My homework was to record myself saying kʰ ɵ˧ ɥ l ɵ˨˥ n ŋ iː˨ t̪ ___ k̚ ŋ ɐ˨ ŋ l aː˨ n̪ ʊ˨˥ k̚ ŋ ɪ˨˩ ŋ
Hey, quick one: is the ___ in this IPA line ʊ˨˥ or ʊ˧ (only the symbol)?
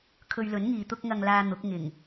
ʊ˧